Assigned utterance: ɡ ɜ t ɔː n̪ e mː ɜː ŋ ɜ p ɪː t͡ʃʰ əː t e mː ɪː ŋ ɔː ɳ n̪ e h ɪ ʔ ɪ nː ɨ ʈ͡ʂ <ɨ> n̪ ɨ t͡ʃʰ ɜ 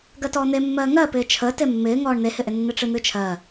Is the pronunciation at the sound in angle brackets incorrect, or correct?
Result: correct